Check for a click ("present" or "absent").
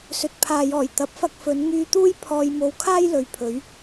absent